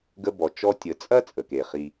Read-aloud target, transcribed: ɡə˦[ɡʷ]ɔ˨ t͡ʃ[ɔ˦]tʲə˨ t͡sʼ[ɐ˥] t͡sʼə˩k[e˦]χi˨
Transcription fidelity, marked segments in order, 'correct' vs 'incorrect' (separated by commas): incorrect, correct, correct, incorrect